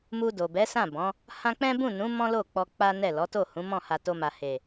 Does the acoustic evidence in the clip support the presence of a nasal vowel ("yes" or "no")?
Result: yes